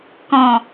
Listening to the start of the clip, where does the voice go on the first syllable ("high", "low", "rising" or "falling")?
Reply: low